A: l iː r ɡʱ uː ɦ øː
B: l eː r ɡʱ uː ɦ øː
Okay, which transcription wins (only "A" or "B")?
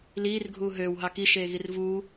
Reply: A